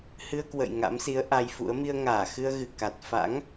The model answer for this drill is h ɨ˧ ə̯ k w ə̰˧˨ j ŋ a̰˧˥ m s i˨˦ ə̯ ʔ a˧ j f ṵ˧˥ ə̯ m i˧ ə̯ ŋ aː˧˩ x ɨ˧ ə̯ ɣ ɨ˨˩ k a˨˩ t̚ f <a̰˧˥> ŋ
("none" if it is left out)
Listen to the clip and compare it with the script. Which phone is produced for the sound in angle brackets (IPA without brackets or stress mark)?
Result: a̰˧˥